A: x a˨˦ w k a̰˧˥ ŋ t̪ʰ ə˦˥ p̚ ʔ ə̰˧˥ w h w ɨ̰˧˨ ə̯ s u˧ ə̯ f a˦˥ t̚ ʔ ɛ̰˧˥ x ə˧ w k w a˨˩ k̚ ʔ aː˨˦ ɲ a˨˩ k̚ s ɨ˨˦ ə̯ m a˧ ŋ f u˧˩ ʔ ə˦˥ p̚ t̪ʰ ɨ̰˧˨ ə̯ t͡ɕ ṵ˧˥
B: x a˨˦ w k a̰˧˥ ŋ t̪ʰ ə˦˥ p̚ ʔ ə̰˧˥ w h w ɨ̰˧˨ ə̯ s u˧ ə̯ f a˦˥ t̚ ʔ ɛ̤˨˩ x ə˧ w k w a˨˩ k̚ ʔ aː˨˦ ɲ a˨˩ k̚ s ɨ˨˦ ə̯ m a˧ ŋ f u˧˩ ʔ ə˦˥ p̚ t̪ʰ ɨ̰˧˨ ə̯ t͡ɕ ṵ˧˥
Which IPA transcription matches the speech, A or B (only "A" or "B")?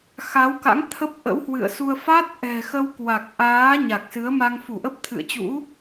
B